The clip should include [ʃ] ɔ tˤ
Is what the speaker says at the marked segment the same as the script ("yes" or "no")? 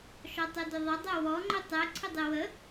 yes